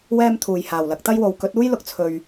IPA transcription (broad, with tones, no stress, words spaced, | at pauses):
wɛː˥mt̪ʰuː˨j haː˨˩wlɐ˨˥k̚t̪ɐ˥jwo˨w kɵ˨˥t̚uː˥jlʊ˨k̚ t͡sʰɵ˧ɥ